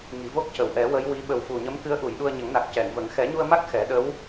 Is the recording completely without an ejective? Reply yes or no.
yes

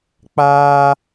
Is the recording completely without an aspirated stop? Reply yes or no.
yes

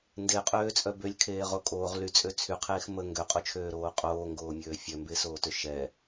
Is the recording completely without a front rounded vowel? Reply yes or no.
no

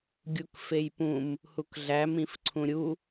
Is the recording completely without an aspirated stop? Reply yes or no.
no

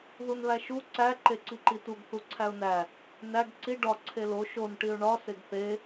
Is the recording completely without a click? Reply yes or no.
no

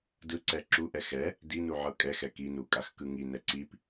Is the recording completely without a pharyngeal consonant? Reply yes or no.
no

